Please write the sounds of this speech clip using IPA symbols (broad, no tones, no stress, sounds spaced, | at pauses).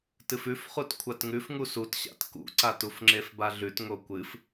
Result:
t ɨ f ʉ f χ u t kʷʰ a t ŋ ʉ f ŋ u s u t ɕ a̰ t k ṵ ǀ a t u f ŋ͡ǁ e f b a ɮ ʉ t ŋ o kʷ ɨ f